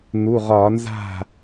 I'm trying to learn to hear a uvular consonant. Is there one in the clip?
yes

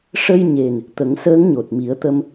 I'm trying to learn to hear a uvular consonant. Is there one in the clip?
no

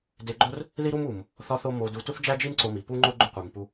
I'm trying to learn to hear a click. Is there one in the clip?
yes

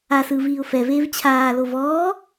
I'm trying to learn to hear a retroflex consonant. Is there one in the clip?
no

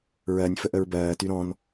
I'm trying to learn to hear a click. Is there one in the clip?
no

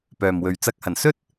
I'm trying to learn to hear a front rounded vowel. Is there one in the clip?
yes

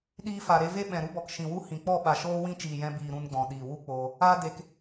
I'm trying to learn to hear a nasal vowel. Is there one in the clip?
yes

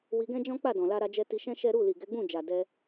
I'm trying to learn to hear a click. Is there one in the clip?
no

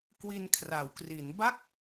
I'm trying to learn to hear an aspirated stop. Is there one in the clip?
yes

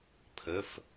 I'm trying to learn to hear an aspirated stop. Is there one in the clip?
yes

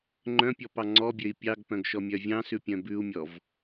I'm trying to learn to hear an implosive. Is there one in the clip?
no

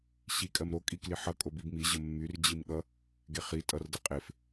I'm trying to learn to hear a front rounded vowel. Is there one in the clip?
yes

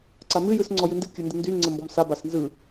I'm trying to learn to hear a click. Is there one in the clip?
yes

